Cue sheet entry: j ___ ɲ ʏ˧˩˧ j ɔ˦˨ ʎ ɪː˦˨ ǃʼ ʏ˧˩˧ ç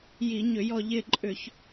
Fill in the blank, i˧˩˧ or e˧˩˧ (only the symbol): i˧˩˧